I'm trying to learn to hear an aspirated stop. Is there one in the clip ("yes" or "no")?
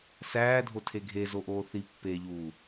yes